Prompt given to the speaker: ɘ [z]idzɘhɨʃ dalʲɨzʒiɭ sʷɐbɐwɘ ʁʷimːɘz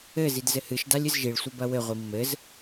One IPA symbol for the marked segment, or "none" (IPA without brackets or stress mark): z